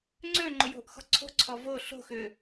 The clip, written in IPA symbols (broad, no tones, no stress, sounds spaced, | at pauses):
ŋ͡ǀ ø ŋ͡ǃ ʊ j o̤ ʔ x ɔ̤ ǀʰ o̤ ǀʰ ɔ v o ɬ o̤ x ʏ